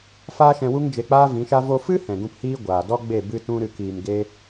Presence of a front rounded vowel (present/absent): absent